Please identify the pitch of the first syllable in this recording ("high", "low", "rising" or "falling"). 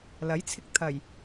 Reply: rising